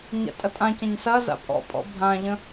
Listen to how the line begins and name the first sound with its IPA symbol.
ɲ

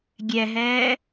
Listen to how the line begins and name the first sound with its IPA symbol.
ɡʲ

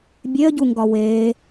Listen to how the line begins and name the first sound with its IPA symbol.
bʲ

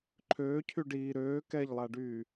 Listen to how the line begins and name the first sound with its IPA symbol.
ǃʰ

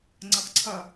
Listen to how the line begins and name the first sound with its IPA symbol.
ŋ͡ǀ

